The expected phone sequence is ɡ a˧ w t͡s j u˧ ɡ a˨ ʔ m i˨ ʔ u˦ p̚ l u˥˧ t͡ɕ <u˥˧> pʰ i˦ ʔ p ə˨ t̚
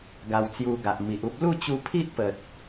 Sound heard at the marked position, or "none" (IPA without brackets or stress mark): u˧